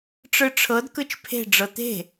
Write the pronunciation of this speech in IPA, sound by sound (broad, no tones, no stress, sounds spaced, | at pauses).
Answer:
ʈ͡ʂ ɯ ʈ͡ʂʰ ɤ d k ɯ t͡ʃ pʰ e̤ ɖ͡ʐ ɤ t̪ e̤